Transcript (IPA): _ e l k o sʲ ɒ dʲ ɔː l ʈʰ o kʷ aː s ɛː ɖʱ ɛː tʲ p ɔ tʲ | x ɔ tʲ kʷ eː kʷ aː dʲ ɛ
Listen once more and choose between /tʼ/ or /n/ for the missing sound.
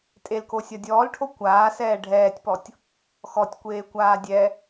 tʼ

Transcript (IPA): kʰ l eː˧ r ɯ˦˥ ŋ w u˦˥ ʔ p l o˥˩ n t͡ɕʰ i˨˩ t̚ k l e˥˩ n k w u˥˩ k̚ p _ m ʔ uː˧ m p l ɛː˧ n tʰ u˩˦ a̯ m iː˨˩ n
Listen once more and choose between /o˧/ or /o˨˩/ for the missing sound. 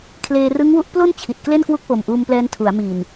o˨˩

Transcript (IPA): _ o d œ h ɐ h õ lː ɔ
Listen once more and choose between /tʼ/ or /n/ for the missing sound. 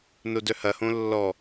n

